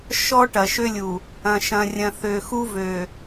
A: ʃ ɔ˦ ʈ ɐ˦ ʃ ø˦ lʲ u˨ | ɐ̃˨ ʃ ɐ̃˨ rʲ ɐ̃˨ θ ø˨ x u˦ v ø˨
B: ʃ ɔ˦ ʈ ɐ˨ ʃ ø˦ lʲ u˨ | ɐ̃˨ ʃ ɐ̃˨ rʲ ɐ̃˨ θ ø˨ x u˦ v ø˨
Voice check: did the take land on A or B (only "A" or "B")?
B